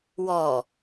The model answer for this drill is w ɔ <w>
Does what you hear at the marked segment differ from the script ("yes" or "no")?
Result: yes